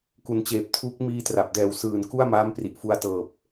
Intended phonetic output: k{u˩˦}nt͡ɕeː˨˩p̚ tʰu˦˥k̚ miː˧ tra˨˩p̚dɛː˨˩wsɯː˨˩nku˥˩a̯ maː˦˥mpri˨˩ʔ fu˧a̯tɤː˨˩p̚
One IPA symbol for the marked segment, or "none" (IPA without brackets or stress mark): u˨˩